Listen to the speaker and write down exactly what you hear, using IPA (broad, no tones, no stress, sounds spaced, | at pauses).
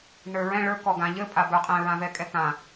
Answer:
n ə˞ ɹ ɛ̃ ɭ ə˞ k ɔ ɡ ã ʎ ɘ pʼ a b ə˞ qʼ ɛ̃ ɹ ã v ɛ kʼ ɛ k ã